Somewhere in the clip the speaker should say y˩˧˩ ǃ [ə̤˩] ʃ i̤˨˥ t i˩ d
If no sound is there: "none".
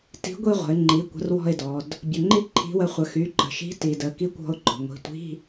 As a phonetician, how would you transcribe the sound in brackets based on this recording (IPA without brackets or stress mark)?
ə̤˩